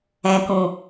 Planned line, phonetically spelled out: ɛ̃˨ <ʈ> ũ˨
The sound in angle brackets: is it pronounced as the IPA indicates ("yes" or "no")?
no